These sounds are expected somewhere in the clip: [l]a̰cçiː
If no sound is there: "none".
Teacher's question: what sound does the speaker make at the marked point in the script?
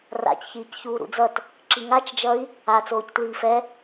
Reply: r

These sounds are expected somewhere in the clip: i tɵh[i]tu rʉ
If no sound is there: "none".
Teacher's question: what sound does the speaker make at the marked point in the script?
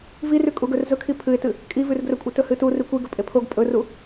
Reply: ɨ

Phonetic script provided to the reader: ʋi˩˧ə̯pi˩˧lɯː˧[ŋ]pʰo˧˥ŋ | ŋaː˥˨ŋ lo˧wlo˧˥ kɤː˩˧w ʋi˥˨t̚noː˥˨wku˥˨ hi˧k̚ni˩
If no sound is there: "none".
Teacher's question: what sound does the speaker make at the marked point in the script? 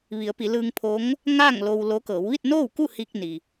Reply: ŋ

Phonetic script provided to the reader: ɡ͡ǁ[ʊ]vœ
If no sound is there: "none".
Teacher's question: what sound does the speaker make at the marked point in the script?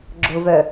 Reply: ʊ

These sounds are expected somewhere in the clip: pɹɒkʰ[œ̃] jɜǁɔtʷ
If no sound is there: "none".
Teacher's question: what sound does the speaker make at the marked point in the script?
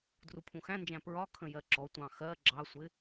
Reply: ə̃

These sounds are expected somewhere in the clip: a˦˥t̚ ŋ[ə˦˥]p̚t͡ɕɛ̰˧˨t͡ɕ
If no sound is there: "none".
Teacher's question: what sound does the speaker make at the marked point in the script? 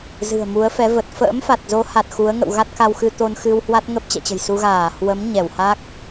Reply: ə˦˥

